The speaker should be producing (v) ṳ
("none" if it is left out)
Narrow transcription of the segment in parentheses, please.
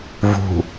v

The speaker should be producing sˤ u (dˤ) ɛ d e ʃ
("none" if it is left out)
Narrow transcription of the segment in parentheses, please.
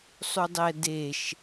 dˤ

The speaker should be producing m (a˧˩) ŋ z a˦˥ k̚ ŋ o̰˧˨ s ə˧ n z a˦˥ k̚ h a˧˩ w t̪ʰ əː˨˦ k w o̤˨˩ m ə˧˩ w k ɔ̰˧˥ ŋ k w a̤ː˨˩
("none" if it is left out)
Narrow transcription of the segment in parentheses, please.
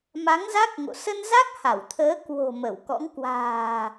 a˨˦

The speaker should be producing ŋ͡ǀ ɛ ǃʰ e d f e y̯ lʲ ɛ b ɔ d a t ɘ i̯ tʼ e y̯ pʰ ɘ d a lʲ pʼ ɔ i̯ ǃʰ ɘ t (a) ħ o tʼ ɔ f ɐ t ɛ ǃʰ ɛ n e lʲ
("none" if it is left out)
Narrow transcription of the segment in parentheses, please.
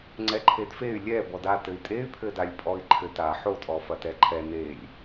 a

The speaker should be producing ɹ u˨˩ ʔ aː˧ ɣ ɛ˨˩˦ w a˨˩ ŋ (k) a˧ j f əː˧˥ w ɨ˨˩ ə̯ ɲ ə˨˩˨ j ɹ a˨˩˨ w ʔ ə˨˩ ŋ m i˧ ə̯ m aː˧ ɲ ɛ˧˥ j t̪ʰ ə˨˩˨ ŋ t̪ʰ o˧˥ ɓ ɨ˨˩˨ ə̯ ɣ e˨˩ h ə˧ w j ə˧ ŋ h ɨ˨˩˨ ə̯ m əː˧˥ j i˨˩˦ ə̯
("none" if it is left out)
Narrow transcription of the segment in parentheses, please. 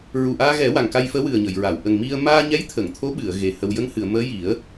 k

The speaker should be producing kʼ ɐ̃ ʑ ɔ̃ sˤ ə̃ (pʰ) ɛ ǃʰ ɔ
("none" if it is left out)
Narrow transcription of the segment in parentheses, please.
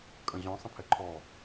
pʰ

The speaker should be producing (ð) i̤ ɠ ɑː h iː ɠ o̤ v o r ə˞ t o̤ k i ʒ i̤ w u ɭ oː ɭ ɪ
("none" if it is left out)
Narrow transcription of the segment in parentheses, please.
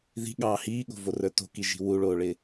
ð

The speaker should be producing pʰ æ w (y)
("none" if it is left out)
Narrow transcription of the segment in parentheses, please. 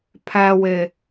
e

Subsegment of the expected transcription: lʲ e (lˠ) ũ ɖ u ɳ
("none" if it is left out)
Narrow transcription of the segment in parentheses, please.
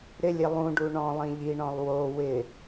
lˠ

